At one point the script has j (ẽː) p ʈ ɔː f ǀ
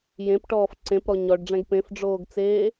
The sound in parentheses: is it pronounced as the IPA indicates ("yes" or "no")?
no